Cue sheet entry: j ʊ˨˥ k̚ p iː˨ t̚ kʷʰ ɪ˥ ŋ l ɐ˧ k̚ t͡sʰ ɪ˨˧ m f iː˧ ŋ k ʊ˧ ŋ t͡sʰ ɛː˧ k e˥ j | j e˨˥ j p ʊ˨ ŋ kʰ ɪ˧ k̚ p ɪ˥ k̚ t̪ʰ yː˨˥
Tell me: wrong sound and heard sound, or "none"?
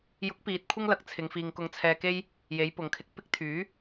m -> ŋ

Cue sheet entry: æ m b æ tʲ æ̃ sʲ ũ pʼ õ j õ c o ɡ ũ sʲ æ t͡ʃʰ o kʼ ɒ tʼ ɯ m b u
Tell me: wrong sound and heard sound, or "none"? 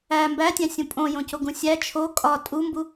ɯ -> u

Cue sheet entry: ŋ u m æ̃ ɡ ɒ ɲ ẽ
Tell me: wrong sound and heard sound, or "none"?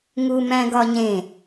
none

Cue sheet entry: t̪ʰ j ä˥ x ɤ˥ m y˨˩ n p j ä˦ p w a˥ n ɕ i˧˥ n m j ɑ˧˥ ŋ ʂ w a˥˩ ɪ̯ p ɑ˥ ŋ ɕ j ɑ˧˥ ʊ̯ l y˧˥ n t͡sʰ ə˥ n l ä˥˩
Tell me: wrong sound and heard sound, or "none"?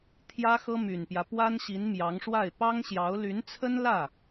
none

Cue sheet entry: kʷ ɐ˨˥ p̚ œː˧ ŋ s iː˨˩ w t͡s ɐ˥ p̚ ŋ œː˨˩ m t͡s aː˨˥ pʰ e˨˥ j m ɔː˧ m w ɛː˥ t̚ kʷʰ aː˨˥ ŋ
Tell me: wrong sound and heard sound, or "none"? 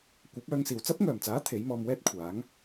pʰ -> t̪ʰ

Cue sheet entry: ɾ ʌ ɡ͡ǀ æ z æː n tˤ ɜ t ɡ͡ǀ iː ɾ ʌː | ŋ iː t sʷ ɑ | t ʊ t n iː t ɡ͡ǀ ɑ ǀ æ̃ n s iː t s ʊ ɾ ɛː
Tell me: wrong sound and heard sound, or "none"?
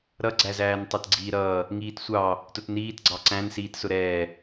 none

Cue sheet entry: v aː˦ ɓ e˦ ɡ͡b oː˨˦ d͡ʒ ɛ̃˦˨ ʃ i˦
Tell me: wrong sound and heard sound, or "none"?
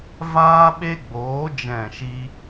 none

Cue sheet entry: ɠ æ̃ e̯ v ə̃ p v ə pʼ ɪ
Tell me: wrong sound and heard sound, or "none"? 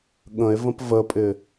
æ̃ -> ə̃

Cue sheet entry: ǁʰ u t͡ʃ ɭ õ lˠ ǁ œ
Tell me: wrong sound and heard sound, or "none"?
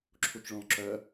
none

